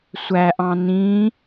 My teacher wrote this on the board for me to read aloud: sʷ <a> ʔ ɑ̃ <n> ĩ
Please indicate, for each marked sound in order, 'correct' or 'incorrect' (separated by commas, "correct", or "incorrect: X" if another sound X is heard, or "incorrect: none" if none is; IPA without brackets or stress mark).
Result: incorrect: æ, correct